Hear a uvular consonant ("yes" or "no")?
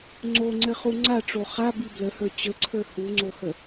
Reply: yes